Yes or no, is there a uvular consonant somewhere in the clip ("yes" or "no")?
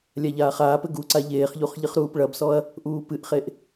yes